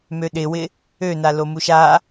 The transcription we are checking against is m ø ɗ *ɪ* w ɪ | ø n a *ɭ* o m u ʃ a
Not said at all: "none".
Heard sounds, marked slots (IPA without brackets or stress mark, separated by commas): ɪ, l